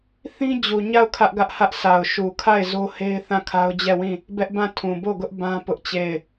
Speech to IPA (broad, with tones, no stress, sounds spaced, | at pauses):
θ ĩ˦ d͡ʑ u˨ ɲ a˦˨ ʊ̯ kʰ ä˦ ʔ ɡ ä˦ ʔ h ä˦ ʔ sʰ a˨ ʊ̯ ʃ u˨ kʰ a˦˨ ɪ̯ z o˦ h e˦ ɪ̯ θ ã˦˨ kʰ a˦ ʊ̯ d͡ʑ ɛ˦˨ w ĩ˦˨ | b ɛ˦ ʔ b ã˦˨ tʰ ũ˨ b o˦˨ ɡ ʊ˦ ʔ b ã˦ p ʊ˦ ʔ t͡ɕ e˦˨ ɪ̯